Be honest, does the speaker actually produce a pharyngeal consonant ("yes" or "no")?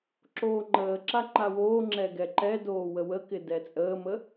no